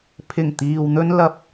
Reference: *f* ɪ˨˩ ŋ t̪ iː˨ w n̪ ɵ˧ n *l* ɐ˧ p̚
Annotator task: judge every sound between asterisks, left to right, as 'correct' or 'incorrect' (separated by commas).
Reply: incorrect, correct